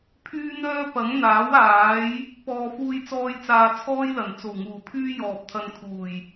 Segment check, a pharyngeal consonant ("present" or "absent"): absent